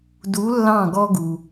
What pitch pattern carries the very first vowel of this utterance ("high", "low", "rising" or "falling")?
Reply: rising